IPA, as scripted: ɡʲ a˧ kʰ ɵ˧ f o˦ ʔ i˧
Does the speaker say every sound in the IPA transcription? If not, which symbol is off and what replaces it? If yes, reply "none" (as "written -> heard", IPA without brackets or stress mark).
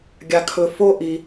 none